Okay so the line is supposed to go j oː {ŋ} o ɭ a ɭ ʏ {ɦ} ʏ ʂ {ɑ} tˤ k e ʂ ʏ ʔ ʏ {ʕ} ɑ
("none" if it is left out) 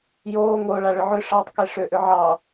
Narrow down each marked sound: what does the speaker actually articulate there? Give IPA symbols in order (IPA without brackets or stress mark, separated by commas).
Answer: ŋ, ʕ, ɑ, ʕ